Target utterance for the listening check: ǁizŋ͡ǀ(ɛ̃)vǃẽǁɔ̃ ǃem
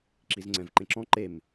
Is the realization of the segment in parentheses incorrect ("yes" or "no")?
no